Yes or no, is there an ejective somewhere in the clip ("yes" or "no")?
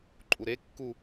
yes